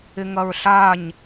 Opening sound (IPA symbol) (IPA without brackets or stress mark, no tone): ɪ